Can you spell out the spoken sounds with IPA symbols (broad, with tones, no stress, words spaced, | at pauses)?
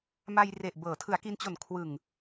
ma˧jre˨˩ʔ bɤː˩˦tʰɯ˩˦a̯ki˧nt͡ɕo˨˩n kʰwɯ˨˩ŋ